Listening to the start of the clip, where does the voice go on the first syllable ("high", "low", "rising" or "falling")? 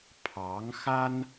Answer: rising